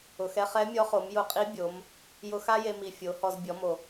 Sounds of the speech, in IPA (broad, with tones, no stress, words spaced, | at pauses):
ʊ˩˧xɛ˥ χɛ˧˥mʲɔ˧˥χo˩˧m jʊ˧qʼi˧˥bʲo˩˧m | jʊ˧xa˥je˧mi˩ fʲo˩˧hɔ˧z bʲɔ˩˧mo˩